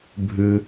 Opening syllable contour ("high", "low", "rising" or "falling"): low